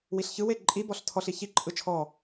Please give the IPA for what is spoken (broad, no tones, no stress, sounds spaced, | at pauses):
w i ɬ ç ɯ w e ǃʼ i b ɔ ɬ tʰ ɔ ɬ i ç i ǃʼ ɯ t͡ʃʰ ɔ